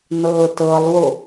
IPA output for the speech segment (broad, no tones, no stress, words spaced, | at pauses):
nɤːtɤlˠwo